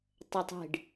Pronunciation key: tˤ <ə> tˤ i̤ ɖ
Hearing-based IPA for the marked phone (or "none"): ə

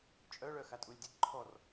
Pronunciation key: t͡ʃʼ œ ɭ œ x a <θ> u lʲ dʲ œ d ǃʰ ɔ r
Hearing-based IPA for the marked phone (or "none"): tʼ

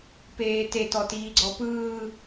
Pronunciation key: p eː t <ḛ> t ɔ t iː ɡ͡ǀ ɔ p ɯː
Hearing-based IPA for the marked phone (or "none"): e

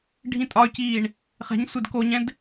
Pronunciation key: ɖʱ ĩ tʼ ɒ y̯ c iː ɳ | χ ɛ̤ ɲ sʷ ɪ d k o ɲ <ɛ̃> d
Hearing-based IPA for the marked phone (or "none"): ɛ̃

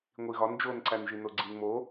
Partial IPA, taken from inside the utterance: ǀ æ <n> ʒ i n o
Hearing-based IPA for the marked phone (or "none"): n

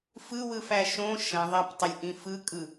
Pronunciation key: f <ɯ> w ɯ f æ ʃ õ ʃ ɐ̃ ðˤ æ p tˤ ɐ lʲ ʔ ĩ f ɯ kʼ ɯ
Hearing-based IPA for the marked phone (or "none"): ɯ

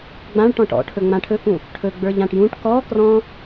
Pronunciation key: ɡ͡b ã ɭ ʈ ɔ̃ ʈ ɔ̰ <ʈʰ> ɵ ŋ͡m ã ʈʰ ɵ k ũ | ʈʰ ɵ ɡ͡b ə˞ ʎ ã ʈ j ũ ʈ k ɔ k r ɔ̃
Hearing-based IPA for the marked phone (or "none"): ʈʰ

